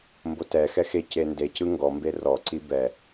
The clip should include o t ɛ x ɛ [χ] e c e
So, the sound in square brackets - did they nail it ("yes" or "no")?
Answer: no